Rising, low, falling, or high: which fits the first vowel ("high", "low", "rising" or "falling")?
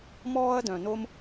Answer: high